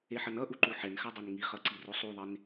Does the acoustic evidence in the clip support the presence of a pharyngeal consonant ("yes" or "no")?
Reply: yes